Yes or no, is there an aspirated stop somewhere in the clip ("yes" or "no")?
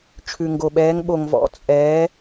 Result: yes